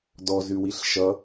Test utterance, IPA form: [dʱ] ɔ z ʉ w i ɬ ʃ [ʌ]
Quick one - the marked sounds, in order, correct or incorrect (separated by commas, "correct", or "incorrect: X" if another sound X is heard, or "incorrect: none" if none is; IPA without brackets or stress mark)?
incorrect: d, correct